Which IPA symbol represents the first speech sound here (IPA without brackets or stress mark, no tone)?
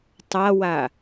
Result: tˤ